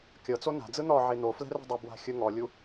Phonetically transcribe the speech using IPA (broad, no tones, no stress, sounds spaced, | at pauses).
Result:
kʲ ɤ t͡s o n a̤ d͡z ɯ n̪ ɔ ʕ e n̪ o f l ɛ̤ r ɛ̤ dˤ ɛ b w a̤ xʲ ɯ ŋ ɔ lʲ u